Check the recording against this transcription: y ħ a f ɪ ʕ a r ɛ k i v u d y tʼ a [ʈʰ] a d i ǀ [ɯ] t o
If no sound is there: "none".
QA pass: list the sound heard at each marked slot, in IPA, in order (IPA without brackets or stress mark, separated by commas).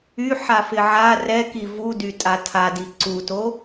tʰ, u